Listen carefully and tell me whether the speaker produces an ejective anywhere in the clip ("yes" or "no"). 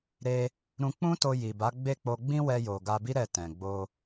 no